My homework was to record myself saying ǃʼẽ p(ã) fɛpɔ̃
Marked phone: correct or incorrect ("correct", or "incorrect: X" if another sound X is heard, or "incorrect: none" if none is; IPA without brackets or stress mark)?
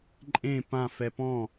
correct